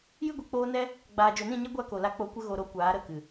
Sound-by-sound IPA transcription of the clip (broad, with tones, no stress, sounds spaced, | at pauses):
j ɨ˦ ɡʷ i˨ k͡p oː˦ n ɛ˦ | ɡ͡b aː˨ d͡ʒ o˨ n ĩ˦˨ ɲ ɛ˦ ɡʷ a˦ k o˨ l a˦ k͡p o˧ kʷ ə˦ ɣ o˨ ɾ o˧ kʷ aː˨˦ ɾ ə˦˨ k ɨ˨